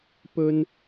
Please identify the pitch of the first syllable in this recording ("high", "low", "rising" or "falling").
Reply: high